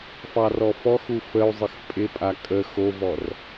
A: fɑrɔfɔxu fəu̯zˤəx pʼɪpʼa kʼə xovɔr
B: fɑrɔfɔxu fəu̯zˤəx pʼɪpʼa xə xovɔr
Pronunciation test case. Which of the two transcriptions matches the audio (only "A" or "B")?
A